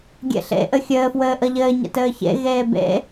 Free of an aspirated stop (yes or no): yes